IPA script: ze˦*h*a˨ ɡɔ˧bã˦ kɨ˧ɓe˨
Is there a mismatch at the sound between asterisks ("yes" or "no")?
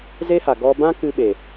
no